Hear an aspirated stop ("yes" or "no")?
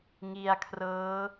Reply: yes